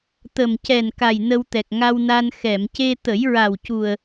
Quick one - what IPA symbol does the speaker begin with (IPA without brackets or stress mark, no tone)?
t̪